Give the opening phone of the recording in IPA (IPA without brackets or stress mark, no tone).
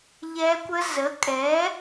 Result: ʎ